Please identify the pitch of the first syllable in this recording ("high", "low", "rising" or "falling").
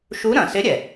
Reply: rising